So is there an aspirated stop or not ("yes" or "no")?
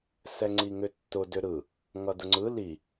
no